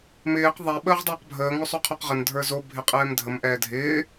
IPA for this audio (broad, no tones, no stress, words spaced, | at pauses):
mɪːq ðˤɛ ɓəːʁdˤəːqbʱəː ŋosˤoqʰoqʁən dʱə˞zo bʱɪqʼɛːmdʱəm ʔɛːdʱɪː